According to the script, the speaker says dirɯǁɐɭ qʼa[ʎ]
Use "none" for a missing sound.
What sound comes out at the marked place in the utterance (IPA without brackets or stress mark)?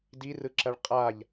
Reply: ʎ